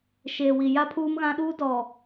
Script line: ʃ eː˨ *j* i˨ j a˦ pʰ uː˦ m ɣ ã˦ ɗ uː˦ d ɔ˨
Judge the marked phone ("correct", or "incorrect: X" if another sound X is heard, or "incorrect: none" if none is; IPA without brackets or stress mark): incorrect: w